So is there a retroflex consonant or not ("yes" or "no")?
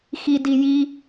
no